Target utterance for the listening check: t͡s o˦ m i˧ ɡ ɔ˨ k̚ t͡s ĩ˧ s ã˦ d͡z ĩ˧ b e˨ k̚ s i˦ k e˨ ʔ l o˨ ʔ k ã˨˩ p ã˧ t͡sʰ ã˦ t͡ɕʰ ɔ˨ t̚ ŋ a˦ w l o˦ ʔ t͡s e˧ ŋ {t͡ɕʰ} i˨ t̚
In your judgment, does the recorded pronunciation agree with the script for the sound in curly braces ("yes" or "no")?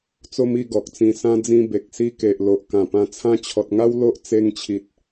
yes